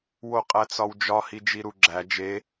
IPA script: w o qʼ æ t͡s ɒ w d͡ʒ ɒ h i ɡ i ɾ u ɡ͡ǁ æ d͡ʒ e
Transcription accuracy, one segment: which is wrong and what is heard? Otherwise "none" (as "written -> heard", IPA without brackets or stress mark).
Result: ɡ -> d͡ʒ